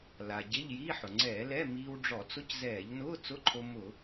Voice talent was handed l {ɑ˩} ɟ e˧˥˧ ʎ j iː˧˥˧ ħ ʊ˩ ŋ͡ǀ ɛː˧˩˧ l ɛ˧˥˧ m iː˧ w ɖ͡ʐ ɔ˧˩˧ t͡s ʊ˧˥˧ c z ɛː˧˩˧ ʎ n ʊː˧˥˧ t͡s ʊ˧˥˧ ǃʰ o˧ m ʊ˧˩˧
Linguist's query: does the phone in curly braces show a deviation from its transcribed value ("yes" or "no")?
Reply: yes